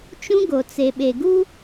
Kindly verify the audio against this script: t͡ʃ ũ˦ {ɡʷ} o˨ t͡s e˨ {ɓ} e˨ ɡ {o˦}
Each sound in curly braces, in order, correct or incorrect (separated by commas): incorrect, correct, incorrect